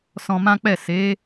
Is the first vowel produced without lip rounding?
no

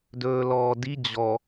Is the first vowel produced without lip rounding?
no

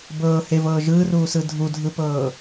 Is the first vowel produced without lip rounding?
yes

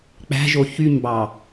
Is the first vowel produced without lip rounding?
yes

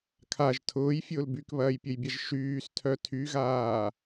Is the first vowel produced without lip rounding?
yes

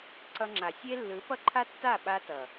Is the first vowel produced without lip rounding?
yes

